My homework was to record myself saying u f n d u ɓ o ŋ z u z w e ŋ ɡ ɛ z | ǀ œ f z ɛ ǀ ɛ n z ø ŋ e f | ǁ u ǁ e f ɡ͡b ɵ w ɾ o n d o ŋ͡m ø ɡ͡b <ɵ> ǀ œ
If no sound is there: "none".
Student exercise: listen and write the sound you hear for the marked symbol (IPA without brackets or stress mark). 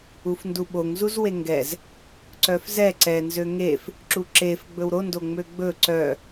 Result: ɵ